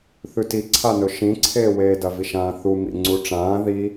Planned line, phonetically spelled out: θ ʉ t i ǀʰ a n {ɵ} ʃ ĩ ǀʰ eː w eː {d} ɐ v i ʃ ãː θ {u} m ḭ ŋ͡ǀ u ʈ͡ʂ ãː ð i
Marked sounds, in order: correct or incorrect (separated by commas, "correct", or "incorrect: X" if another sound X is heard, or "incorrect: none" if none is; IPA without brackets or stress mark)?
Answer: correct, correct, correct